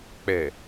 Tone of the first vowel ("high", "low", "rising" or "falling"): low